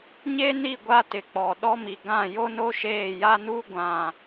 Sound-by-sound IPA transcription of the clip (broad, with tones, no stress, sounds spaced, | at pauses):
ɲ e˦ n i˦˨ ɡʷ a˦ t ɪ˨ k͡p ɔ˨ ɗ ɔ˦ m i˨ ɡ ã˦˨ j o˦ n o˦ ʃ eː˦˨ j a˦ n u˦ ɡʷ ã˨